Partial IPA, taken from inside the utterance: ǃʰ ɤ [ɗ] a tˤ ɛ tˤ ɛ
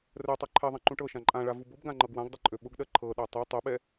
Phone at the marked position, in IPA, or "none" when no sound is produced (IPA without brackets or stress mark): ɗ